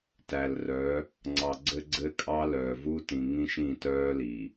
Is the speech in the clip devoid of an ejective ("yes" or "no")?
no